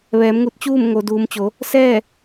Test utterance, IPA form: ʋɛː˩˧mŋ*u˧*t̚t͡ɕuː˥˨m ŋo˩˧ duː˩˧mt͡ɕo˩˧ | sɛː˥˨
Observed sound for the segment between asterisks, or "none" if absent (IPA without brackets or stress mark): u˧